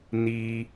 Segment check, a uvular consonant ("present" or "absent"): absent